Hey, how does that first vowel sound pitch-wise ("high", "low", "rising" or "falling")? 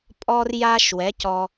high